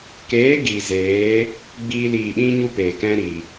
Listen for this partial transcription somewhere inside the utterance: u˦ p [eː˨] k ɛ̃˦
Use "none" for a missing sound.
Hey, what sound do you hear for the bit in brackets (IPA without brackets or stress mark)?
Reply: eː˨